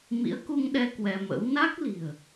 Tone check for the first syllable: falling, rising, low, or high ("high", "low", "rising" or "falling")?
rising